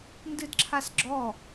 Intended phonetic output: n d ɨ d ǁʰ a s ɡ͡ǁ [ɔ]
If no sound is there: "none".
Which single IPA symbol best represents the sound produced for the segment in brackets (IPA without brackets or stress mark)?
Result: ɔ